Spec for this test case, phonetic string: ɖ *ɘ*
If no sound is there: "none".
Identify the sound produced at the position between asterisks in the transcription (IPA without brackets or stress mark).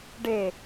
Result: e